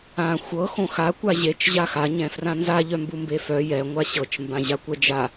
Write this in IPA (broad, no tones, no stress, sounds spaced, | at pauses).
ã xʷ ɤ x õ x a kʷ a ʑ e t͡ʃ ʑ a x a ɲ ɛ̃ f r ã n z a ʎ œ m b u m b e f œ j ɛ ŋʷ a ɕ ɤ t͡ʃ m b ã ʑ a kʷ ɛ d͡ʒ a